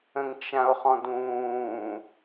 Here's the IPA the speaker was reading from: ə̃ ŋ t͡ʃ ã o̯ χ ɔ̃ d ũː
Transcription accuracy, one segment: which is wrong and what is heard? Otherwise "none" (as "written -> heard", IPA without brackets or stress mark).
none